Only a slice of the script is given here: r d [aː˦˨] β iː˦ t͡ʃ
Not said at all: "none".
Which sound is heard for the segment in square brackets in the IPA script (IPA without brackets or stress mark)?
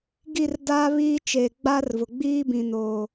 aː˦